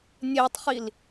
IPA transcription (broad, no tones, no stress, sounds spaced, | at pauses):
nʲ e tˤ χ i l